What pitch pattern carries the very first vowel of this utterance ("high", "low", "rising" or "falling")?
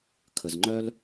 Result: low